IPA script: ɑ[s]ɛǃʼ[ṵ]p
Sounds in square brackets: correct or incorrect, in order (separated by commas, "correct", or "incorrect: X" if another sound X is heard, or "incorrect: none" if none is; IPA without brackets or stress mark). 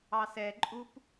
correct, incorrect: u